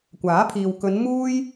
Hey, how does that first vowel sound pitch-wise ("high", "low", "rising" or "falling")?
rising